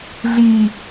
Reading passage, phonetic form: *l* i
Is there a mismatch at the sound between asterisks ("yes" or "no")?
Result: yes